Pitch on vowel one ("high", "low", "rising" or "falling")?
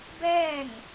falling